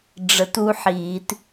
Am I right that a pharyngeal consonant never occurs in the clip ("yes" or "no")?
no